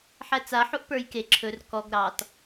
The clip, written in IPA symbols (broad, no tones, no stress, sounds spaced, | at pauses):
ħ æ t͡s a ħ u ʔ p ə˞ j k e ǁʰ ɵ r k ɔ ɡ ɾ ɑ t